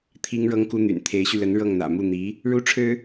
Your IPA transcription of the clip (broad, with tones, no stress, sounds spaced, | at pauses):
t̪ʰ i˥ ŋ ɻ ɤ˥ ŋ k u˥ n̪ y̰˨˩ n t̪ʰ e˧˥ ɪ̯ ɕ y˧ l ə˧˥ n ɻ ɤ˥˩ ŋ n̪ ä̰˨˩ m u˥˩ n̪ i˧˥ | ɻ u˥ ʈ͡ʂʰ ɻ̩˥